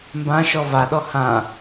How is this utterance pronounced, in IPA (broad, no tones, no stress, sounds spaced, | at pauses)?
m b ã ʃ ɔ v a ɗ ɔ h ã